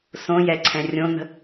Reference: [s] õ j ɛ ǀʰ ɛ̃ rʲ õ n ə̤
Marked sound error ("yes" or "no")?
no